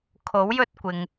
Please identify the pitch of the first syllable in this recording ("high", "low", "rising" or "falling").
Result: rising